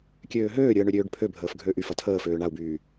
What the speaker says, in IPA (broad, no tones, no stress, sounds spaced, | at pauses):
kʲ øː ɦ øː ɾʲ əː ɳ ø ɾʲ øː ɖ pʰ ø bʱ əː f ɡʱ øː ʔ y f ɐ tʰ əː f øː ɳ a u̯ b yː